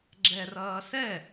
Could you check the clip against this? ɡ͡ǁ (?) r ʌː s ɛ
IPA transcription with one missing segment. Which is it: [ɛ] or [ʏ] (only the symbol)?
ɛ